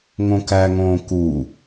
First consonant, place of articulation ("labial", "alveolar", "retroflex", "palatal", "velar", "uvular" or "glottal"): velar